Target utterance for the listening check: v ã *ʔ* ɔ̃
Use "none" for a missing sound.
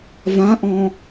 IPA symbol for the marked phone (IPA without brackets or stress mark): ʔ